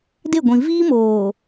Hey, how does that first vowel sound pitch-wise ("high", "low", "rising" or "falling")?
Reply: falling